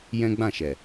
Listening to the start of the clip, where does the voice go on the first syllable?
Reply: high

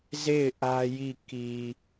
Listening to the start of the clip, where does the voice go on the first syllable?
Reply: falling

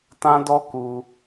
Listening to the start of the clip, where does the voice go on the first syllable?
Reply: high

